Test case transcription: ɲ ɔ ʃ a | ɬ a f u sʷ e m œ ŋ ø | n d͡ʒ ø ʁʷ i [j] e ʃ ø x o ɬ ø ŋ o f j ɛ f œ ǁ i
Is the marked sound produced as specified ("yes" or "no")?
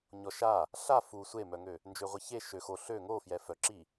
no